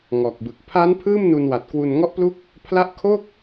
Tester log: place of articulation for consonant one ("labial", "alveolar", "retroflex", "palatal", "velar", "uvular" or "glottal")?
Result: velar